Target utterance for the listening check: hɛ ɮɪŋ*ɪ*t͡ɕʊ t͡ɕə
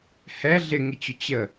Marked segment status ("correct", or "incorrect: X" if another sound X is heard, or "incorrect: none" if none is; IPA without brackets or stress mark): correct